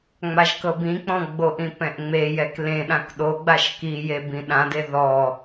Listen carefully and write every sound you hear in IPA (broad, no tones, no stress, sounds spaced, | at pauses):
ŋ͡m a ʒ k ɤ b ĩ k͡p ɔ̃ ɡ͡b o ʔ ĩ p ɛ̃ ʔ ŋ͡m e j ɛ k l ẽ ɗ ã k ɗ o ɡ͡b a ʃ k i j e b ĩ ɗ ã d e ð ɔ